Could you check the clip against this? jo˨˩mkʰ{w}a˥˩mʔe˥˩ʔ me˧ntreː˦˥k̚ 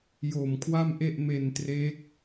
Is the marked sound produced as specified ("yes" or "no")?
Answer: yes